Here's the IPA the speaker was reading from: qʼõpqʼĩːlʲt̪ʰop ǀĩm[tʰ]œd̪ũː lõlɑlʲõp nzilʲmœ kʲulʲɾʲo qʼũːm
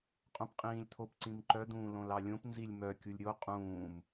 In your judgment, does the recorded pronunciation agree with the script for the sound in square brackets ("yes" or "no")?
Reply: no